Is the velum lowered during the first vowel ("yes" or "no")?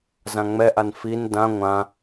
yes